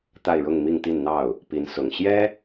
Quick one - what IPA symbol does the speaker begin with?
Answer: t̪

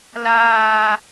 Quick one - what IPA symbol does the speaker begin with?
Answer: l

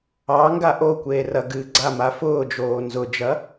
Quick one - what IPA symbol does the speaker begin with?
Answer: ɑ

